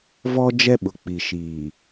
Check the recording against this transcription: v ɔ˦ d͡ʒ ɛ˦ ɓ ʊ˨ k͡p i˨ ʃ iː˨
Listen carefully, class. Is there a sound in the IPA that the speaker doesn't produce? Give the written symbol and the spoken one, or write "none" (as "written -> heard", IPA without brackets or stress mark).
none